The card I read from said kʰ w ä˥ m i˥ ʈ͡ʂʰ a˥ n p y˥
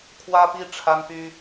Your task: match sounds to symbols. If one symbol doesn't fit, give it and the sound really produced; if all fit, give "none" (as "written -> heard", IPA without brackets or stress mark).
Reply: m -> p